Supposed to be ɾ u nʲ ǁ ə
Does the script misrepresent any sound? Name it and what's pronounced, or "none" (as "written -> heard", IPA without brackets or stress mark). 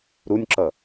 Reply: ə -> ʌ